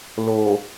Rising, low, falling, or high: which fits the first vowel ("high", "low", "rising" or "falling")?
low